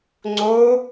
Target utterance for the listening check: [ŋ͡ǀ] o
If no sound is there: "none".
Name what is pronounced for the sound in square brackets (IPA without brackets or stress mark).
ŋ͡ǀ